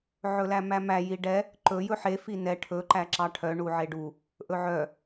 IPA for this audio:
ʕ ɵ l æ m æ m æ j i ɖ ɛ | ǃ ɵ j ɵ ħ e f i n ɛ ʈʰ ɵ ǃ æ ǁ ɑ ʈʰ œ ɳ u ʕ e ɖ u | ʔ ɵ ʕ œ

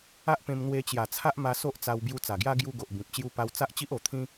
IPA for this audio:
a˦ ʔ p ẽ˧ m n̪ w e˧ t͡ɕ j a˨˩ t͡sʰ a˦ ʔ m a˧ s o˦ ʔ t͡s a˧ w b j u˧ t͡s a˨˩ ɡ j a˦ ɡ j u˧ ɡ o˨ ʔ b ĩ˨ p̚ t͡ɕ j u˦ p a˦ w t͡s a˦ ʔ t͡ɕ i˦ ʔ o˨˩ t̪ʰ ĩ˦

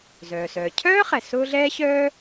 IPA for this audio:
z œː˩ s œː˩ cʰ œː˥ χ ɛ˩ s ʊː˥ ɮ ɛː˥ ɕ œː˥

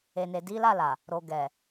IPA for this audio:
e˨ n e˨ d i˨˦ l a˦˨ l a˨ | ɾ o˨ ɡ ɛ˨

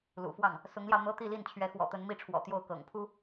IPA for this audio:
l ṵ˨˩ f w ɑ˥˩ ŋ | s ʊ˧˥ ŋ l j ɑ˧ ʊ̯ n̪ ɤ˥ t̪ i˥˧ l i˥˩ n t͡ɕʰ ɥ ɛ˧˥ x w ɔ̰˨˩ t̪ ə˧˥ n m i˥˩ ʈ͡ʂʰ w ɔ̰˨˩ t̪ j o˥˩ ʊ̯ k ɤ̰˨˩ ŋ pʰ u˥

